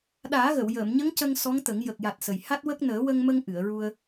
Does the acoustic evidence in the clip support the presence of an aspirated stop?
no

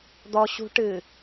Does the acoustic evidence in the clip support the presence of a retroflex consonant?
yes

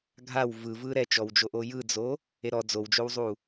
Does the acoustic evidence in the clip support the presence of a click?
no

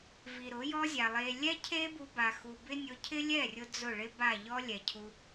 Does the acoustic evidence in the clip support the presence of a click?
no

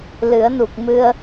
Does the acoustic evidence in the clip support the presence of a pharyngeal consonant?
no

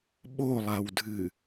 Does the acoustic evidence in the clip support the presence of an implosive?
yes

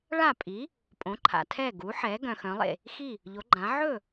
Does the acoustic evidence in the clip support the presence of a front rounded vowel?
yes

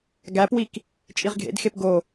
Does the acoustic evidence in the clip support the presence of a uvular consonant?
yes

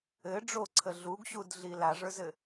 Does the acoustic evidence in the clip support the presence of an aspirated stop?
yes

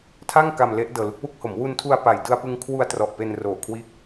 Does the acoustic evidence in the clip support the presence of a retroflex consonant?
no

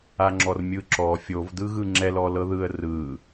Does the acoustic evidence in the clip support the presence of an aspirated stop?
no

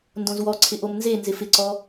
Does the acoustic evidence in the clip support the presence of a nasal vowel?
yes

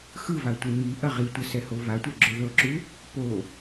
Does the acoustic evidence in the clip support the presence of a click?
yes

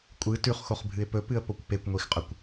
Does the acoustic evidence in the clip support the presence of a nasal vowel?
no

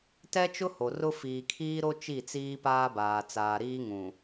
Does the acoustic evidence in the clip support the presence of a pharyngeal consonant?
no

